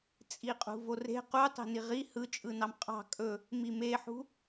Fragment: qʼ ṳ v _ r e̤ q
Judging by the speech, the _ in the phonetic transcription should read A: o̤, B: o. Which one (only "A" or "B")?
B